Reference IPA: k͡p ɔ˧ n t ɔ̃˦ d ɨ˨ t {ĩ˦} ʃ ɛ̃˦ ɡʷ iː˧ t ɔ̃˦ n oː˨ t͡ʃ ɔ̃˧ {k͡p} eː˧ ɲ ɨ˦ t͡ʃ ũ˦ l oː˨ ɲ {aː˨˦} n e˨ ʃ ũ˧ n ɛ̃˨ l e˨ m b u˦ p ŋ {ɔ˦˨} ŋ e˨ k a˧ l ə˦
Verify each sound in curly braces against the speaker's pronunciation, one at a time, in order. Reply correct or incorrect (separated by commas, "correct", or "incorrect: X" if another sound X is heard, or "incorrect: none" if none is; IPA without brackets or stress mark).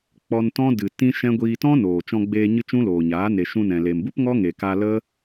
correct, incorrect: ɡ͡b, correct, incorrect: ɔ˦